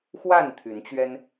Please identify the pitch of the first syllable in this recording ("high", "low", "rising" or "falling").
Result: falling